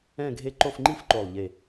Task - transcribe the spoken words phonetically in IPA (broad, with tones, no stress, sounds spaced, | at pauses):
ɛ̃˥˧ ɡʱ e˥˧ ǃ o˥˧ f ŋ͡ǃ i˥˧ f ǃ o˨˩ lˠ ʎ e˨˩